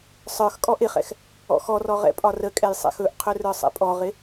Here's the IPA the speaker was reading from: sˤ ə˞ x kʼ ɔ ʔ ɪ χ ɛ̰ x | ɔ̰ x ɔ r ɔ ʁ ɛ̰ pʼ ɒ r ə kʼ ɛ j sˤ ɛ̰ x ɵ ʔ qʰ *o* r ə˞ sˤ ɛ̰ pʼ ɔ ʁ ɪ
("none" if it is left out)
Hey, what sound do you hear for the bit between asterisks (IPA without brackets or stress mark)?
ɵ